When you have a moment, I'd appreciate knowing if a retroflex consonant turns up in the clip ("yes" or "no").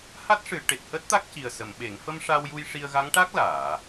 yes